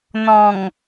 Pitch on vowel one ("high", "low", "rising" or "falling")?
low